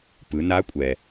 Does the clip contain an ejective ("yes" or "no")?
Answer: yes